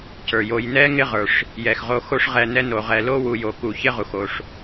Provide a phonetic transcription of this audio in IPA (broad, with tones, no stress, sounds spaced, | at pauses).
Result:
c ə˞˩ j o˨ j n ɛ˥ ŋ ɪ˦ ʁ ə˞˩ ʂ | j ɛ˩ x ʁ o˨ x o˦ ʂ ʁ ɛ˨ n ɛ˦ n o˩ ʁ ɛ˨ l o˥ w u˨ j o˩ k u˨ ç ɪ˦ ʁ u˩ x o˩ ʂ